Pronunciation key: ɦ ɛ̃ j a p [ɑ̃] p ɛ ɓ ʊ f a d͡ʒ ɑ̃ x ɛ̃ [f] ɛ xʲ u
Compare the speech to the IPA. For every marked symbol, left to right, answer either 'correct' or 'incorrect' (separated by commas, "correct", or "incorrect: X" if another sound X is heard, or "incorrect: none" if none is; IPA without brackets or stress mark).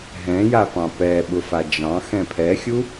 correct, incorrect: pʰ